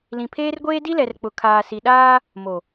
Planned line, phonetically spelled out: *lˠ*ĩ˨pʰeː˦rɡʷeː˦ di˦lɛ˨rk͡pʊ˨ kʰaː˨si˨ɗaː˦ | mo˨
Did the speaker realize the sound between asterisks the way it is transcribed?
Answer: no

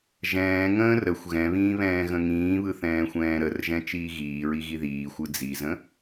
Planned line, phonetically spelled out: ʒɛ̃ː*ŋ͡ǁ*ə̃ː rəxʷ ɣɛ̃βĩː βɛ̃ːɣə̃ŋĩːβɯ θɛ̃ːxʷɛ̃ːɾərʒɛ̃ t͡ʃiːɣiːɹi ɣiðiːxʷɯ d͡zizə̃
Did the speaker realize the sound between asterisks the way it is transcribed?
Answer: no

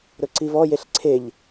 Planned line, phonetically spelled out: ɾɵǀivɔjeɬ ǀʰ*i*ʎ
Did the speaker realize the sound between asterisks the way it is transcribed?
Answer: no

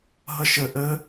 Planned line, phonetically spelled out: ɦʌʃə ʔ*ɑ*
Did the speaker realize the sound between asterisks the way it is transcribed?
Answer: no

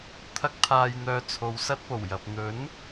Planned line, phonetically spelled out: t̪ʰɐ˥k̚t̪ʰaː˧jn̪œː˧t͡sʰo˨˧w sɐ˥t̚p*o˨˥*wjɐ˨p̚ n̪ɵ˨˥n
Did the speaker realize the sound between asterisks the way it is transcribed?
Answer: no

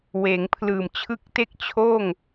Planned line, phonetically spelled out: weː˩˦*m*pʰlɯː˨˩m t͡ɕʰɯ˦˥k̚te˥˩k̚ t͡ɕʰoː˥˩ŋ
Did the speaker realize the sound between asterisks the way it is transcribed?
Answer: no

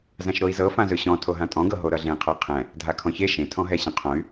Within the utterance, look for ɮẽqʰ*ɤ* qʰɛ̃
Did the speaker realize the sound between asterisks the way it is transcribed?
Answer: yes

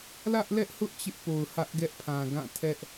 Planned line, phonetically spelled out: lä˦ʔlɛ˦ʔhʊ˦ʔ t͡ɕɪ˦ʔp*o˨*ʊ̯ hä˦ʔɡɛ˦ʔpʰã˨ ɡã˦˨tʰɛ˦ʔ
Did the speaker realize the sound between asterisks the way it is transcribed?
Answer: yes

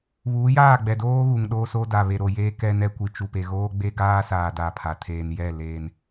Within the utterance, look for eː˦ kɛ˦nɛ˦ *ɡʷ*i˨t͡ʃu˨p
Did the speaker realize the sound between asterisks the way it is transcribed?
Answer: no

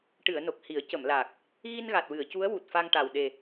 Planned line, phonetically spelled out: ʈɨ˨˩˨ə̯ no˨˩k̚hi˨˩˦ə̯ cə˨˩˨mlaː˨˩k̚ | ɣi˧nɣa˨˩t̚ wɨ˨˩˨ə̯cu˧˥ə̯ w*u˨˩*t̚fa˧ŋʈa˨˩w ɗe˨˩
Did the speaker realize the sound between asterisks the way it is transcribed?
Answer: yes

